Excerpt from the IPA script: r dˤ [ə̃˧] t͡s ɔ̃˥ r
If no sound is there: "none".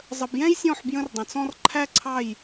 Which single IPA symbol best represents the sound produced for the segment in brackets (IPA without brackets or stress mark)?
ə̃˧